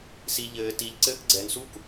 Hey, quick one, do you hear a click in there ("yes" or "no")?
yes